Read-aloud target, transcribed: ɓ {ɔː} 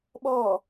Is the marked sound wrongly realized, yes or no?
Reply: no